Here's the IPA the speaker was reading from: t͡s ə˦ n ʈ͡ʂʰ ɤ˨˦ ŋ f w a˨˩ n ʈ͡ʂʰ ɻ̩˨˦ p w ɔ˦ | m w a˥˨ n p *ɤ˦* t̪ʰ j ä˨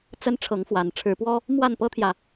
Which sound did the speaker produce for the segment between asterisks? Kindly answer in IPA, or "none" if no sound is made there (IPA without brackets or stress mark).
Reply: ɤ˦